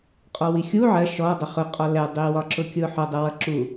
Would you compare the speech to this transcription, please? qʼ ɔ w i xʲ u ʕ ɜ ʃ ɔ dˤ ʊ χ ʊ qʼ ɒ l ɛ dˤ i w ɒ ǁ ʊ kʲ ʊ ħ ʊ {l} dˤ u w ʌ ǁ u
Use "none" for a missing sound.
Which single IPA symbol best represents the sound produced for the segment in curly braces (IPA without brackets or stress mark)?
none